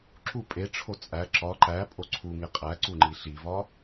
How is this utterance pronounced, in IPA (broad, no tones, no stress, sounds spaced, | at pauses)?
ǁ u pʼ e ʈ͡ʂʰ o t͡sʼ æ ǁ ɒ ǃ æ pʼ o ǀʰ u ŋ e qʼ æ ǀ u ŋ͡ǃ i ɬ i v ɒ